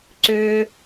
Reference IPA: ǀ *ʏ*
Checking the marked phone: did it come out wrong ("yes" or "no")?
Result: no